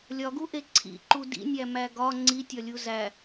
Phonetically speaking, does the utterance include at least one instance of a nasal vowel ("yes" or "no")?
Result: no